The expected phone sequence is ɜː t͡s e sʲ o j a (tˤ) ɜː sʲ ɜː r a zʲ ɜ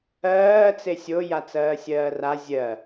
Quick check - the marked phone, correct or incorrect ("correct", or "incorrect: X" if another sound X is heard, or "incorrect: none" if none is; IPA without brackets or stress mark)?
incorrect: t͡s